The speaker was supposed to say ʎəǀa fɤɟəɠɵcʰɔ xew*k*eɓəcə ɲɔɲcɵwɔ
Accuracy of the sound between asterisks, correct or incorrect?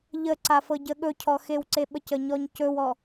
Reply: incorrect: ǀ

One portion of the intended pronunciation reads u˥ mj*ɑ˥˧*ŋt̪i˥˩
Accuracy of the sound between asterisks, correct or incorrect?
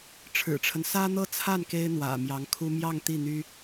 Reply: correct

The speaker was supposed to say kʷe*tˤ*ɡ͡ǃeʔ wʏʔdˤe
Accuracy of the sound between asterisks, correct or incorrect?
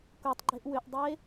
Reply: correct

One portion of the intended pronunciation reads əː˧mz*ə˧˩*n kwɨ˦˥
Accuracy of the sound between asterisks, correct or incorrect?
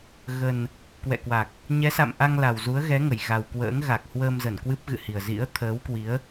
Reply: correct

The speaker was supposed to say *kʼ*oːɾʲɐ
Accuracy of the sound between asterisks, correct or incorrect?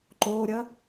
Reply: incorrect: ǃ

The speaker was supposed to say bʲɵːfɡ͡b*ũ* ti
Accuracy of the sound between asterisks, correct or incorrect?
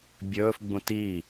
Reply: correct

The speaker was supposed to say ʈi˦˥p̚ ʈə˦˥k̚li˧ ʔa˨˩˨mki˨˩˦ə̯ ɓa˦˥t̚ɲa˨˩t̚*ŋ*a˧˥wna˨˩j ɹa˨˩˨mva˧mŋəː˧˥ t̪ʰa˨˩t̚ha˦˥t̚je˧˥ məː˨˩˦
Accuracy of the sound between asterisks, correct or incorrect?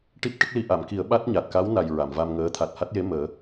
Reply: incorrect: k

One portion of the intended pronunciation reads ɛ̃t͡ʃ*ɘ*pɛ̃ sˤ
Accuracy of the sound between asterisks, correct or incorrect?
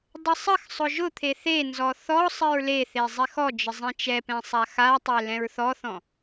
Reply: incorrect: ɛ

